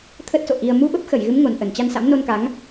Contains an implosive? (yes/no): yes